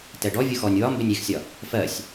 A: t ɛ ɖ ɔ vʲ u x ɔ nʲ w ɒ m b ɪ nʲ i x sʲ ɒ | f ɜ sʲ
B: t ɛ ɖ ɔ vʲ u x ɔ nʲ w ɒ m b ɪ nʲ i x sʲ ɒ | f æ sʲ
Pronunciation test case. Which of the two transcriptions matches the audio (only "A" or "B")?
A